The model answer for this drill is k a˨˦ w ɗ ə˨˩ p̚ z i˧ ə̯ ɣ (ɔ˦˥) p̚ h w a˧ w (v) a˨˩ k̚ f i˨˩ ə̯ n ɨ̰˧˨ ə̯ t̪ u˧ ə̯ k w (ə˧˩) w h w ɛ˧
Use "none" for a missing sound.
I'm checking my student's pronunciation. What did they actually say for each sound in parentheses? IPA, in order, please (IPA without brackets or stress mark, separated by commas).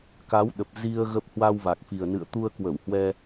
ə˦˥, v, ə˧˩